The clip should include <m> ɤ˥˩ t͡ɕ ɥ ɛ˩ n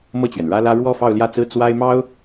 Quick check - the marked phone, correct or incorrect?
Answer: correct